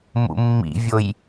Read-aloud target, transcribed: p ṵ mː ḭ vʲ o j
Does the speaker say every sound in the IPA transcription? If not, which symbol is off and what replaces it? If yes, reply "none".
p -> m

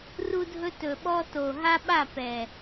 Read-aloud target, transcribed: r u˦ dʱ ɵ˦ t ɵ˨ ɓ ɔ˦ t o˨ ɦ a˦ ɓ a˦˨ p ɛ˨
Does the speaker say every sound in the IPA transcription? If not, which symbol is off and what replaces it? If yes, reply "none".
none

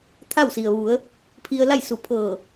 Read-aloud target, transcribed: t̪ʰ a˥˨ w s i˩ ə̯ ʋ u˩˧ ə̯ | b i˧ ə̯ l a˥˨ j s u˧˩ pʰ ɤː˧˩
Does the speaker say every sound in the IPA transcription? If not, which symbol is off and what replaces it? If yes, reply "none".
b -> pʰ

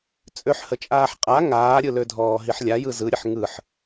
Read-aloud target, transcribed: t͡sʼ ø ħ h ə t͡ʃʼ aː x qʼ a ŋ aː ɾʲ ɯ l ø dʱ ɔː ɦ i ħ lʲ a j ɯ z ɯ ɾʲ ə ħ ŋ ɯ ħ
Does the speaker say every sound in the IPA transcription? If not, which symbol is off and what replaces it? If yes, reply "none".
x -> ħ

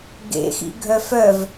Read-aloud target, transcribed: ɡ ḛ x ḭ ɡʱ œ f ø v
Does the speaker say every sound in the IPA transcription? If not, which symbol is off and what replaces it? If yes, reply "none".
ø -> œ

